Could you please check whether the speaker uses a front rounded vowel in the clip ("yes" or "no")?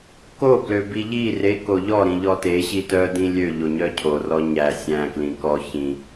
yes